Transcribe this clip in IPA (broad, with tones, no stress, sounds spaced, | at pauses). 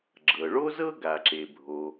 ɡ͡ǁ ɤ˩ ɭ o˥ z ɤ˥ ɡ a˩ ǁ e˩ bʱ o˩